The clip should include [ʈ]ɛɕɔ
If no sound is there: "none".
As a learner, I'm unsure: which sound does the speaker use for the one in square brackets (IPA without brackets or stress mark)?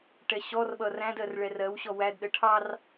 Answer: ʈ